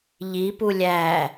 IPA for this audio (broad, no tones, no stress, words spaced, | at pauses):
ʎipu lʲæ